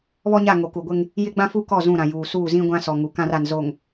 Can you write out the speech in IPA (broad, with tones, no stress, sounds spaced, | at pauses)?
β ɔ˦ ɲ a˦˨ ŋ o˨ k u˨ ɡʷ ɪ˦ ŋ | j ɪ˦ ɡ͡b ã˦ f u˦ k ɔ˦˨ z ũ˦˨ ɾ ã˨ j uː˨ s uː˦˨ z ĩ˦ ɡʷ ã˦ s ɔ˨ ŋ u˨ k ã˦ r a˨ n z o˨ ŋ